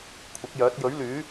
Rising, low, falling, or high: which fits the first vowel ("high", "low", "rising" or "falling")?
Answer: rising